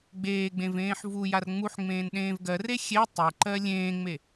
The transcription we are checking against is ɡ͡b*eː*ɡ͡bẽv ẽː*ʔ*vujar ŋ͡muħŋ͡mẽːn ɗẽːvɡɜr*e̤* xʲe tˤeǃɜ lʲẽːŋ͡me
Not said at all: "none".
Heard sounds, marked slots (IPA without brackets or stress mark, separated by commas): eː, ħ, e